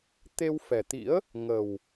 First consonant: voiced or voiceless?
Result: voiceless